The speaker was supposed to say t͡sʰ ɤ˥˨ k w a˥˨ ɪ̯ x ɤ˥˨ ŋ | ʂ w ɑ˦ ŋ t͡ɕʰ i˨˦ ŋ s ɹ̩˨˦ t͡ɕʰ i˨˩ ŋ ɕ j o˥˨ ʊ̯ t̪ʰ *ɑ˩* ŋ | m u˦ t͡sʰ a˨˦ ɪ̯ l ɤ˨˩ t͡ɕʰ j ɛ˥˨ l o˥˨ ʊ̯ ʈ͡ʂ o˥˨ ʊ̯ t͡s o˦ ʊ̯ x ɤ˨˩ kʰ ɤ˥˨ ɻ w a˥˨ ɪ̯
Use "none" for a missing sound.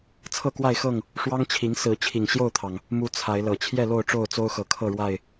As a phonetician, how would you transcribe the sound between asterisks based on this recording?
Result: ɑ˩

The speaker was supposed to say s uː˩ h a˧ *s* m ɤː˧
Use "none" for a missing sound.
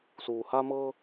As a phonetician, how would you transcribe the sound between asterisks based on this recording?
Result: none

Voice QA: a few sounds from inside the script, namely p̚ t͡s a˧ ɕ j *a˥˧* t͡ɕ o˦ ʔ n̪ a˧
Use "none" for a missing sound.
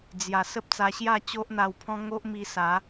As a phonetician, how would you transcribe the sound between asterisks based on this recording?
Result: a˥˧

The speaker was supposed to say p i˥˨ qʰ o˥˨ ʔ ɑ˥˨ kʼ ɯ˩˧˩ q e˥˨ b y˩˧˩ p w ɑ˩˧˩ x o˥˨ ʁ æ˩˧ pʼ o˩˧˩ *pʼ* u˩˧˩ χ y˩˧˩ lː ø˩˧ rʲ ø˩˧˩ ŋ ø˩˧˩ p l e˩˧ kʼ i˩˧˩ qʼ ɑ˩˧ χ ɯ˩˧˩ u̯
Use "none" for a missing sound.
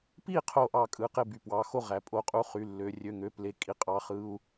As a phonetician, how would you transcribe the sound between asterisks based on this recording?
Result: qʼ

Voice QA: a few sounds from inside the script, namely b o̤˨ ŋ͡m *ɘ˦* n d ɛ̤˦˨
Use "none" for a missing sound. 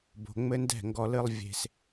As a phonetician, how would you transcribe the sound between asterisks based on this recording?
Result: ɘ˦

